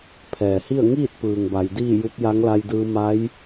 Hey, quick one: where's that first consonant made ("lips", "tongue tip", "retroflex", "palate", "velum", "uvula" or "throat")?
lips